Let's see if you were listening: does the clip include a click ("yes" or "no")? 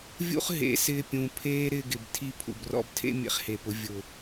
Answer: no